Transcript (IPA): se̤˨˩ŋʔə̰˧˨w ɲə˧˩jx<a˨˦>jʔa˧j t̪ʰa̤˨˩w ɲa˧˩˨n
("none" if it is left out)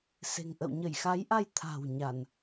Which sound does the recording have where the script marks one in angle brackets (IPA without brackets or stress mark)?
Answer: a˨˦